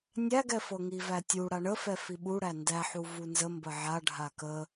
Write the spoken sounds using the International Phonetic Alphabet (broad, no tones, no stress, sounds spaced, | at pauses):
nʲ æ ɡ ɛ f ɤ ŋ i v æ tʲ u ɽ a ɳ ə f ɛ f i ɓ u ɽ æ n d æ ħ u v u n z ə m b ə ʕ a ɖʱ a k ə